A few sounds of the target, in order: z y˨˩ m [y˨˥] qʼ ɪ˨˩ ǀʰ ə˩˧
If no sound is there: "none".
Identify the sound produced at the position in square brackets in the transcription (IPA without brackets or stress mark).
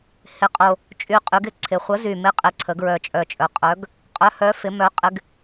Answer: ɪ˨˥